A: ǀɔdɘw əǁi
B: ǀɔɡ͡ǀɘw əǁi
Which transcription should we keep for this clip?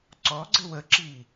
B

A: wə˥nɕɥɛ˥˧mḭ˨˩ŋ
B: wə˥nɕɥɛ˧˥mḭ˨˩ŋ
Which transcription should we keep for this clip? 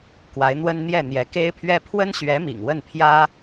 B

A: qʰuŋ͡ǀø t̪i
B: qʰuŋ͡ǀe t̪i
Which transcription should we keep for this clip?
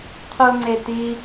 B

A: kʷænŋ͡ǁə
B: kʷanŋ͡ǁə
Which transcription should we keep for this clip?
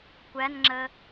A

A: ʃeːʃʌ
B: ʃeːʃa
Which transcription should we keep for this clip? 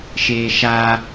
B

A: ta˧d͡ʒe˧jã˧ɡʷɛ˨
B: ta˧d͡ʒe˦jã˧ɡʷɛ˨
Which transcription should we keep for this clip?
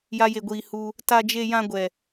A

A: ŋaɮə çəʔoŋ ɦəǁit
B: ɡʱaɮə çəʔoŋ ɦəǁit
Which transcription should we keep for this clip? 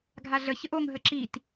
B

